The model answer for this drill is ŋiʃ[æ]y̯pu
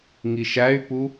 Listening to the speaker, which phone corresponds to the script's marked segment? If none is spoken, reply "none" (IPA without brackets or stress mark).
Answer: æ